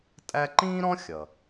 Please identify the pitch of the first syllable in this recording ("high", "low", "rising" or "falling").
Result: high